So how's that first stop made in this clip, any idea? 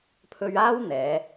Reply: aspirated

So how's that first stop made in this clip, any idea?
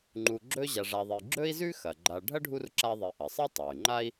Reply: click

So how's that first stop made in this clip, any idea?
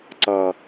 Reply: click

